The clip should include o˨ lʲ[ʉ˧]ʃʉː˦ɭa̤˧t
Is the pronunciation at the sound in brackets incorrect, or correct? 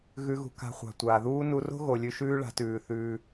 correct